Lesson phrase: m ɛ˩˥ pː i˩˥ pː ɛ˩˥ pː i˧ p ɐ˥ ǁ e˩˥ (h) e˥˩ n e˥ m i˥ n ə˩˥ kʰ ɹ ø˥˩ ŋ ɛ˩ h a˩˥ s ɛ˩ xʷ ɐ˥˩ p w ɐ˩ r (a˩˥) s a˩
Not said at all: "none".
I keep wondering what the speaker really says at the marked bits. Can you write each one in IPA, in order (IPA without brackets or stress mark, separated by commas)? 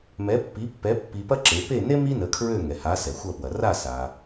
p, a˥˩